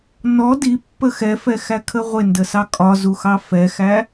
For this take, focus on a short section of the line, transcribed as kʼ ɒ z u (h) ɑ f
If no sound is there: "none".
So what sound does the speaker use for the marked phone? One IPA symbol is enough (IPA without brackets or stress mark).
x